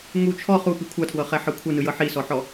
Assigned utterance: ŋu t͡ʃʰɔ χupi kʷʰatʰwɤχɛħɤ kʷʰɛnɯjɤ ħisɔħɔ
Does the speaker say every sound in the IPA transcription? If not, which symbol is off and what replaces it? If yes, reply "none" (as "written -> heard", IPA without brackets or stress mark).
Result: none